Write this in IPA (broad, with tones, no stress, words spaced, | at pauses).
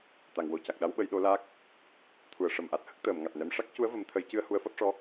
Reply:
t̪a˨˩˨ŋ wo˨˩ ca˨˩k̚ɗa˧˥wɓə˨˩˦j ɗo˧˥laː˦˥k̚ | t̪ʰu˨˩˨ə̯ʂə˨˩mʔa˨˩t̚ hə˦˥k̚t̪əː˨˩˨mŋa˨˩t̚nɛ˧˥m ʂa˦˥k̚cu˧˥ə̯ və˨˩˦mt̪ʰə˨˩˦jcɨ˧ə̯ hu˧˥ə̯fɔ˦˥t̚ʂɔ˧˥